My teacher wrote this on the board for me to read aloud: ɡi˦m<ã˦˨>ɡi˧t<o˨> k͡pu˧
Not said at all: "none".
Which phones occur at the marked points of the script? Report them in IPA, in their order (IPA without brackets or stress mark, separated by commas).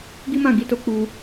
ã˦˨, o˧